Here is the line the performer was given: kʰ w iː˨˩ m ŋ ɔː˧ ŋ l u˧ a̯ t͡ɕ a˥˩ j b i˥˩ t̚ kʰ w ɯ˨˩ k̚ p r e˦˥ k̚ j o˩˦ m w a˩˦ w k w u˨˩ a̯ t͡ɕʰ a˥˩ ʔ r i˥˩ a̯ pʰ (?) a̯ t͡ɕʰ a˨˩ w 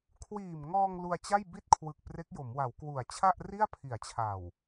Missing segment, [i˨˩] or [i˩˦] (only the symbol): i˩˦